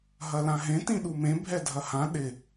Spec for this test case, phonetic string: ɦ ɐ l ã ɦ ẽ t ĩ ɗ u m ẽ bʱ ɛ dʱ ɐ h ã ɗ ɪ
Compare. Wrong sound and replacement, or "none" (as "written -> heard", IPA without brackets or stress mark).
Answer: none